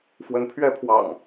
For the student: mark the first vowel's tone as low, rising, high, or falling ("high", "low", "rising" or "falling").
rising